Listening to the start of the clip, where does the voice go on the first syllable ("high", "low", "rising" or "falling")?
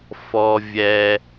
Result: high